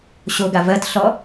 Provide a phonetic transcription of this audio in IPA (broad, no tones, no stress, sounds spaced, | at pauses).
ɕ o ɡ a v ɜ t ɬ ɔ